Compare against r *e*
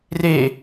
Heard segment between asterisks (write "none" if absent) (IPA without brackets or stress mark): e